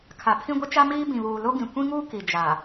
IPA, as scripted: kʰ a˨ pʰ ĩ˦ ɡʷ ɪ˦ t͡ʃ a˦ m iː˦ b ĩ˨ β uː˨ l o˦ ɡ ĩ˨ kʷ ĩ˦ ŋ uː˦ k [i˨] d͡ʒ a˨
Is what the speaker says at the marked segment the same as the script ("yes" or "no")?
yes